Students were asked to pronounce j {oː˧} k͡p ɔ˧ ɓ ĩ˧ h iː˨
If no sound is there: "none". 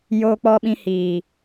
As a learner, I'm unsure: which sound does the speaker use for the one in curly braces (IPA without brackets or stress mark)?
oː˧